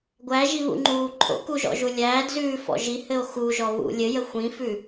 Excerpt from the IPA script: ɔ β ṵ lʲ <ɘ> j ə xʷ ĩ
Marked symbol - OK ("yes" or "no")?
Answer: yes